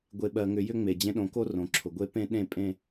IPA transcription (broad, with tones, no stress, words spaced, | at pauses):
ɡʷe˨ɓɜ˨ŋʏ˨ jʏ˦ŋ͡me˨ d͡ʑẽ˦ɗõ˨˦ko˦rõ˨ ǁʰʊ˨ɡʷe˦ pẽ˦ɗẽ˦˨ pʼẽ˦